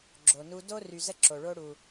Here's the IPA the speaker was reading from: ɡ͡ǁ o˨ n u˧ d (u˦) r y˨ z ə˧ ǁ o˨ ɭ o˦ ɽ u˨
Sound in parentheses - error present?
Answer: yes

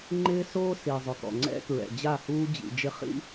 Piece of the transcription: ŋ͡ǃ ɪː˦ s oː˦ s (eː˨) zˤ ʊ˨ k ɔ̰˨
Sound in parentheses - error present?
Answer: yes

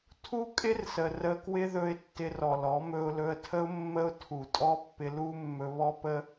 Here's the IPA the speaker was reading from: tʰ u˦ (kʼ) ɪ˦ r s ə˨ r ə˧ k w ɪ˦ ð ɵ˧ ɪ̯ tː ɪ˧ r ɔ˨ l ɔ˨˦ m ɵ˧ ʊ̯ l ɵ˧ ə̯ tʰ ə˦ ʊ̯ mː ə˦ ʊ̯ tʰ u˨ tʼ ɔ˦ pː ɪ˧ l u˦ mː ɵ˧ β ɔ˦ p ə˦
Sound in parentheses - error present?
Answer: no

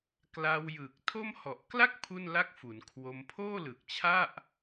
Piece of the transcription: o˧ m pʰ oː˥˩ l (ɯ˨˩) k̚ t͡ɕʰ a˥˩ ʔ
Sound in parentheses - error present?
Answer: no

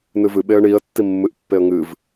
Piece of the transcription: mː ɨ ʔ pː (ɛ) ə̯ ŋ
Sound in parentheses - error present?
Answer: yes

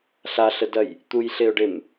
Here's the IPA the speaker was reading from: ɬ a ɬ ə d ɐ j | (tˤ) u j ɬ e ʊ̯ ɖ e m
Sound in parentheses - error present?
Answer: yes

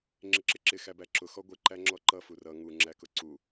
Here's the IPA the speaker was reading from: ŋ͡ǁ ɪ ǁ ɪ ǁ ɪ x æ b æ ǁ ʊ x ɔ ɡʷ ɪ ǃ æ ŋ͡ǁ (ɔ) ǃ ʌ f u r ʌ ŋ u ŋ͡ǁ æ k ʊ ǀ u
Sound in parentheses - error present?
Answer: no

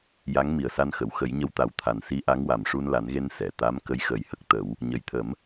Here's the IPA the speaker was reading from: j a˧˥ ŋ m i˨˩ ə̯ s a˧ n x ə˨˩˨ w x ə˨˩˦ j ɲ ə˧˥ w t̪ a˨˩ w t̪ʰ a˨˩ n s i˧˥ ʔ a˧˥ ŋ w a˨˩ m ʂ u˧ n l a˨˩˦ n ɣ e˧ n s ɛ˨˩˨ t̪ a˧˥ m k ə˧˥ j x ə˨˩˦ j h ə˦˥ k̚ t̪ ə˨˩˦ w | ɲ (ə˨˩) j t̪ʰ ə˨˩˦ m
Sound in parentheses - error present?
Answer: no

